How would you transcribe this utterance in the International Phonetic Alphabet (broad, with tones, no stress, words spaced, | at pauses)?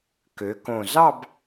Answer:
kø˩˧kõ˨˩ zɑ˥˧b